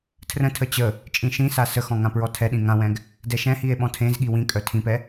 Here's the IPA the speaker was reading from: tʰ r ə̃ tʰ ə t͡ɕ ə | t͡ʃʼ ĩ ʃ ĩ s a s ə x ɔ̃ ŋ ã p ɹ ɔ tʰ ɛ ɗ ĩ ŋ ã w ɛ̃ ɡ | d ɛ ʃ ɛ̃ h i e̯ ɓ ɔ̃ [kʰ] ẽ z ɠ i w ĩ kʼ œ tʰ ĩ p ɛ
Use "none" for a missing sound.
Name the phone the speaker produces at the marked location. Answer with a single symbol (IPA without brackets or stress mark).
tʰ